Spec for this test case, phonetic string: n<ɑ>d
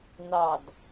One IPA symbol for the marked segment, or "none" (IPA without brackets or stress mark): ɑ